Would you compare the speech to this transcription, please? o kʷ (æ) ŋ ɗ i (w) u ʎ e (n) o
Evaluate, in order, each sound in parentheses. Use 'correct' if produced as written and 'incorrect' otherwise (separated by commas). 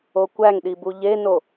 correct, incorrect, correct